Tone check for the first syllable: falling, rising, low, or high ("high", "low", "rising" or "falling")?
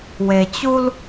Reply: low